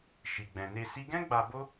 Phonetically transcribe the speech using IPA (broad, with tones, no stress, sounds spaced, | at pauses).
ʃ i˨ ɡ͡b ɛ̃˨ n e˧ s i˦ ɡ ɛ̃˦ ɡ͡b a˧ b o˦